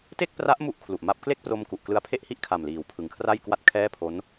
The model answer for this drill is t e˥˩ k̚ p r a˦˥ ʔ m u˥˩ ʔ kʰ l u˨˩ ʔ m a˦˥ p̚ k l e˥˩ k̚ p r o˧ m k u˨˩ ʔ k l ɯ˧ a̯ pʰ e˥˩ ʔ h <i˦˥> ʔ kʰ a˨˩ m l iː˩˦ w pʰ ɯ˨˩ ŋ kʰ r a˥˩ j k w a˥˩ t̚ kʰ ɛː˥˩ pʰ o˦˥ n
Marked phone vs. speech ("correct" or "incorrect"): incorrect